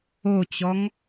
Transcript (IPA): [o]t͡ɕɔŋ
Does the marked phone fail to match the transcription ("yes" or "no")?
no